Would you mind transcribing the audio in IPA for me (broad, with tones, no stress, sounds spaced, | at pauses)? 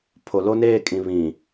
pʰ o˨ l o˦ n eː˦˨ kʼ ĩ˨ β ĩ˨